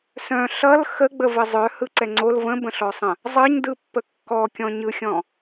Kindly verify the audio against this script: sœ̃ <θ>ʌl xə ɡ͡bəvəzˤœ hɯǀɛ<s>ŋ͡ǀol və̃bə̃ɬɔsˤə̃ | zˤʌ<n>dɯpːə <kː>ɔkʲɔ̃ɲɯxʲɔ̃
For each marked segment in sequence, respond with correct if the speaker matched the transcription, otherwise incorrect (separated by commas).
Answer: incorrect, incorrect, incorrect, correct